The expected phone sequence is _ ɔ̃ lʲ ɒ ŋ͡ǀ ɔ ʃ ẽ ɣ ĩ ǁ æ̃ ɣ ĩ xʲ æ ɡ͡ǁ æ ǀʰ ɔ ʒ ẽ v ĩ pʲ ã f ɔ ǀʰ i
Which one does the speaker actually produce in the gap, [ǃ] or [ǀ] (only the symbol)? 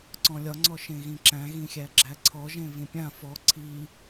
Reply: ǀ